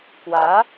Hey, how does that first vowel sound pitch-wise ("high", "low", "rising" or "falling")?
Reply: rising